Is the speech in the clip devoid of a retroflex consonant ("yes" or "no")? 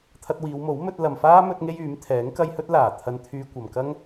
yes